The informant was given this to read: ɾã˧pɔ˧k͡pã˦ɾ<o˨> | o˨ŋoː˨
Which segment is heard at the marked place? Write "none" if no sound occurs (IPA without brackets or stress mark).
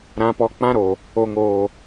o˨